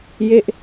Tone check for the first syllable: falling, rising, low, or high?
falling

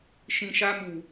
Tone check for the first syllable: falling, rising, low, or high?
low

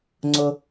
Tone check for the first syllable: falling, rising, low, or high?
high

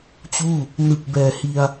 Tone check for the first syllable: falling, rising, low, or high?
falling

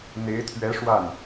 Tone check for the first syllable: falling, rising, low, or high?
rising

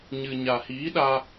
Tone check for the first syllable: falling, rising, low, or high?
low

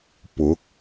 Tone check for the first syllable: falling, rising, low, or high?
rising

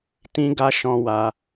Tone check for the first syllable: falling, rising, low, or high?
high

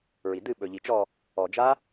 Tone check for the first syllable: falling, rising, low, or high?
low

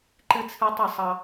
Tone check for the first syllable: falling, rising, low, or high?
high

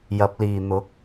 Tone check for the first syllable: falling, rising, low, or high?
rising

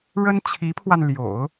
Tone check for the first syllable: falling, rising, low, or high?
high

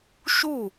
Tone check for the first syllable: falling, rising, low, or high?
falling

